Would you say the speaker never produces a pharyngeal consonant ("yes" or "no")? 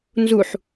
no